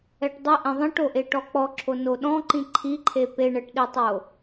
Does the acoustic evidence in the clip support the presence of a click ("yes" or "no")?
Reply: yes